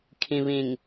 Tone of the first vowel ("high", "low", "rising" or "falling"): low